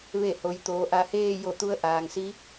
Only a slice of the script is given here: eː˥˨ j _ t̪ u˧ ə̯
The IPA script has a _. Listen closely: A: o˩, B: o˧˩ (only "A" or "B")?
B